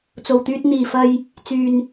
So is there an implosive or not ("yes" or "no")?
no